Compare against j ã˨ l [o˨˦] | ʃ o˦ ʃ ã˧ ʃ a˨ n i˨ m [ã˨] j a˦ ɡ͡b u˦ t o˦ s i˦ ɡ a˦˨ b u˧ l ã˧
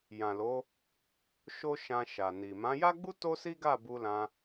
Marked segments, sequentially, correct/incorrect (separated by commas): correct, incorrect